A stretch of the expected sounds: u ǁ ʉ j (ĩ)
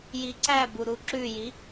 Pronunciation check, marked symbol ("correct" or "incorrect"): incorrect